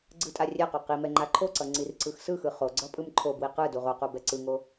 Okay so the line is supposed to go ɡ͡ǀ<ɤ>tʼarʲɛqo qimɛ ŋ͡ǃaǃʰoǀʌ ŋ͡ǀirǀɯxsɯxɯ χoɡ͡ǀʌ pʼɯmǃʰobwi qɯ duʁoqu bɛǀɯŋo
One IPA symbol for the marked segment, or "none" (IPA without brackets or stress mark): ɯ